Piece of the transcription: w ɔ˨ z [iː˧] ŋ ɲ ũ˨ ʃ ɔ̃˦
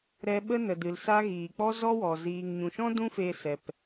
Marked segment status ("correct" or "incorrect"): incorrect